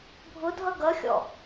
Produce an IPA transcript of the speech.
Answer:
bʱ ʊ dʱ ʌ ɡ ʌ xʲ ɔ̰

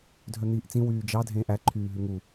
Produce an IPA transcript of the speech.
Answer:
dʱ œ n̪ iː ʔ t͡s ĩ w yː d͡ʒ ɑ dʱ ẽː ʔ æ ǃʰ yː ɦ ʉ ŋ u

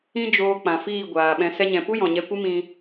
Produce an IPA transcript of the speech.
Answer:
ĩ˦ d͡ʒ oː˧ k͡p ã˨ f iː˦˨ ɡʷ aː˨ ɓ ɛ̃˧ s ɛ˧ ɲ ɛ̃˨ p u˦ j ɔ̃˨ ɲ ɛ˧ kʷ ɨ˦ m ĩ˦

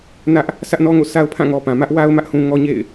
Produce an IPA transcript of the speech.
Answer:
n ä˦ ʔ | sʰ ä˦ ʔ n ɔ˦ ŋ o̰˦˨ s a˦ ʊ̯ pʰ ã˦˨ ŋ ɔ˨ p ã˨ m ä˦ ʔ w a˦ ʊ̯ m ä˦ ʔ h ũ˦ ŋ ɔ˦ ɲ ḛ˦˨ ɪ̯

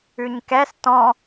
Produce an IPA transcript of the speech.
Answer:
ʉ ɲ k ɛ s t ɔ̃

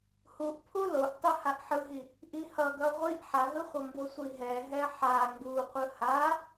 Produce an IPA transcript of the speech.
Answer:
h u ʔ pʰ u l o ʔ tˤ ɯ h a ʔ ħ ɯ ɦ i | ʔ i h ʌ ɡ ʌ ʁʷ i ʔ ħ a ɦ ɯ χʷ ʌ m b o sʷ i ɦ ɛ ɦ ɛ ħ a ŋ ɡ u qʷ ɯ h a

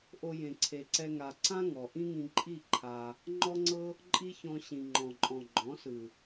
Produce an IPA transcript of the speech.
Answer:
ʔ o˧ j ẽ˨ ǀʰ e˨ ǀ ɛ˧ ŋ a˨ ǀ ã˦ ŋ ɔ˨ ʔ ĩ˦ ŋ ĩ˧ ǃʼ i˦˨ ǃʰ a˧ | ŋ͡ǃ ɔ˦ ŋ͡ǀ ɤ˦ | ǃʼ i˦ ç ɔ̃˧ ɕ ĩ˨ ŋ͡ǃ ɔ̃˨ ǃʼ ɔ̃˨ ɡ͡ǃ ɔ̃˨˦ s ɯ˨

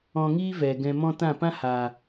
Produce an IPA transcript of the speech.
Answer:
ɔ̃˧ ŋ iː˦ v ɛ˨ ɡ ɛ̃˧ m ɔ̃˦ t ã˦˨ p ã˦ h a˨

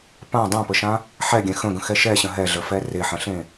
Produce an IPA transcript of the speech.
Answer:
p ã dˤ ã p ə ʃ ã | ħ ɛ ɡʲ ɛ̃ x ə̃ ɡ ə̃ x ɛ ʃ ɛ ɕ ə̃ ɦ ɛ ɮ ə f ɛ r e ħ ə̃ ɬ ẽ

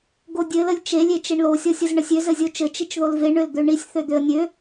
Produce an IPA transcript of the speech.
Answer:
ɡ o dʲ ɘ l ə lʲ t͡ʃ e lʲ e t͡ʃ e ɳ l o sʲ ɔ sʲ ə z ɳ ɘ sʲ ø z ɘ zʲ o t͡ʃ ɘ t͡ʃ i t͡ʃ ð o l v e ɳ ø l d̪ ø ɳ i sʲ θ ø d̪ ø ə̯ nʲ ø

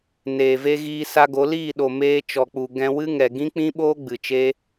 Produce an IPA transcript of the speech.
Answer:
n eː˨ v e˧ ɣ iː˧ s a˧ ɡ o˨˦ l iː˦˨ ɗ o˨ m eː˧ t͡ʃ ɔ˨ k͡p u˨ ɡ ɛ̃˧ w ɨ˦ ŋ ɛ˨ ɡ ĩ˦ k͡p ĩ˦ ɓ oː˦ ɡ͡b ɨ˨ t͡ʃ e˦

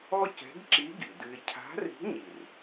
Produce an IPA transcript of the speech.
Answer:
ɔ˥ c ɛ̤˧˥ ɡ ǁ i˧˥ ɡ i˩ d ɨ˧ ɪ̯ cʰ a̤˧˥ r i̤˧˥ ɲ i˩ r

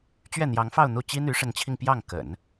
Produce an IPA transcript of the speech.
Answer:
t͡ɕ ɥ ɛ˥˩ n̪ j ɑ˧˥ ŋ f ɑ˥˧ ʊ̯ n̪ u˥˩ t͡ɕ i˥ n̪ y˧˥ ʂ ə˧˥ n t͡ɕʰ i˧ ŋ p j ɑ˥˩ ŋ k ə̰˨˩˦ n

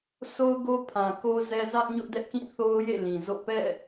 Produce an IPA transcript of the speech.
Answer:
sʰ o˦ ʊ̯ ɡ o˦ pʰ ã˨ k o˦ z ɛ˦ z ä˦ ʔ ɲ ʊ˦ ʔ d ɛ˦ ʔ k ĩ˦˨ θ o˦ ʊ̯ j ḛ˦˨ l ĩ˨ z o̰˦˨ p ɛ̰˦˨

